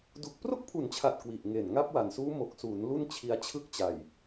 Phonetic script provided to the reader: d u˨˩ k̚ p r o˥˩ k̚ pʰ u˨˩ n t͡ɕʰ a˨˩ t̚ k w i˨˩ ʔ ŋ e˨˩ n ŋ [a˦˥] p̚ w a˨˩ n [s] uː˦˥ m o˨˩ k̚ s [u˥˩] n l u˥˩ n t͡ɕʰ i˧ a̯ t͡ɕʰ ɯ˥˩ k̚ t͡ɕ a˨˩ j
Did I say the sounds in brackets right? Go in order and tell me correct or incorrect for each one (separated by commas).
correct, correct, incorrect